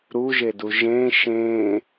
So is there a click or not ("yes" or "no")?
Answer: no